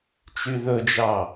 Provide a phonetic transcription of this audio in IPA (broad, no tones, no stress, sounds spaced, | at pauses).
t͡ʃ y ð ɵ d͡ʒ ɑ